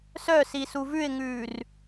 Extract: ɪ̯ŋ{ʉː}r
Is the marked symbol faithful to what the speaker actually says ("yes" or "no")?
yes